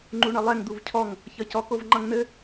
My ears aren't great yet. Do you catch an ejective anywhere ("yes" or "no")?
no